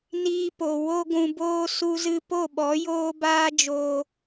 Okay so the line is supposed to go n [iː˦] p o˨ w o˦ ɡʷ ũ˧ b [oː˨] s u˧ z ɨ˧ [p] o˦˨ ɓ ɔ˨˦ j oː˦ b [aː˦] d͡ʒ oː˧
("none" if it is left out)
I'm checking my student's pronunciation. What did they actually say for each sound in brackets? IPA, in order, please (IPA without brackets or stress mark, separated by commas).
iː˧, oː˦, p, aː˦